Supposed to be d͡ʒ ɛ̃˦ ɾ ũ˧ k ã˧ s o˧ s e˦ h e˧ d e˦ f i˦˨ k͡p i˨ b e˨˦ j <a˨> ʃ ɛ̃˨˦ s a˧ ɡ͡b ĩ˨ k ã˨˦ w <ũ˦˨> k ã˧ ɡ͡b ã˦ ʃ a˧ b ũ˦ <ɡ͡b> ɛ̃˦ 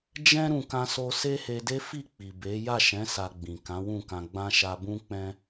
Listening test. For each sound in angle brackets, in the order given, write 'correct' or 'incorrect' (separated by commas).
incorrect, correct, incorrect